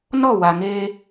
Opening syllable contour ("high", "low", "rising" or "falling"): falling